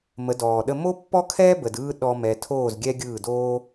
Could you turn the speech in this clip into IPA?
mə˨˦dɔː˨ɗə˦ mo˦pːɔ˦kʰɛː˦ bə˨d ɯː˦ ɗɔ˦mɛ˧ tʰoː˦˨zɡʲɛ˦ɡʲɯː˦˨ doː˦

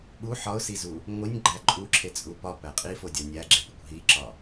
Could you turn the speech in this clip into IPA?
ɓu ħɒʊ̯sizu | ŋʷinʲɡ͡ǃæ ǃʼuǁʰet͡sʼu pɒpæ qʼifodʲɒ nʲæɡ͡ǁepikʷ ɦiǁɒ

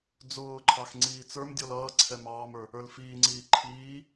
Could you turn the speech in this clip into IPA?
d͡zʊːǃʰɑx ŋ͡ǀiːt͡sə˞mdʲɔl ʌːǀʰɛ mɑːmə˞ | ə˞lfiːŋ͡ǀiː ǃʰiː

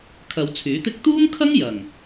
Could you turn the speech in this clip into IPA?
kʰɐ˨˧wt͡sʰyː˨˥t̪ɪ˥k̚ t̪uː˥mkʰɐ˥ŋ jɐ˨˩ŋ

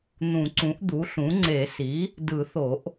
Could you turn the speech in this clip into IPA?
n̪ũ˨˩˦ǀũ˩˥ʔ d̪u˩˥ɬũ˩˥ŋ͡ǀe˨˩˦si˩˥ | dɯ˨˩˦θo˨˩˦ʔ

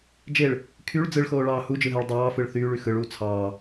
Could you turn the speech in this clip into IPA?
d͡ʒeɭ | kʰyɭ d͡zɯɭxoːɭɑː hud͡ʒɯɦæɭ dˤɑːfɯɭ θyːɭy xɯɭuː t͡sʰɑː

